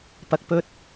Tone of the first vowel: low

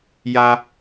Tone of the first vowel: high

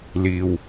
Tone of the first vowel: low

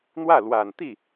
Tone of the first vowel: falling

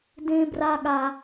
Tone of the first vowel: high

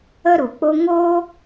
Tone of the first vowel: high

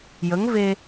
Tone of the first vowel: rising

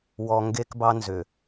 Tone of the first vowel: low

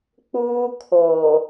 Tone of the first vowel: high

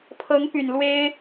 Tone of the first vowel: rising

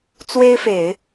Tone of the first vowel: high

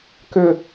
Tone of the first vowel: high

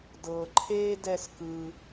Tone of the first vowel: low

